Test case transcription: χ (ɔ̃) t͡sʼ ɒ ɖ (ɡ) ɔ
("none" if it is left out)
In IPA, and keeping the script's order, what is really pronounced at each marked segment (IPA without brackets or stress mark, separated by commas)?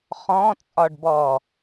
ɔ̃, b